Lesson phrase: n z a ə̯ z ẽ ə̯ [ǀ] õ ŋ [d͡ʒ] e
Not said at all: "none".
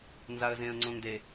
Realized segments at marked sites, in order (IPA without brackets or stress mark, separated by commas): ŋ͡ǀ, d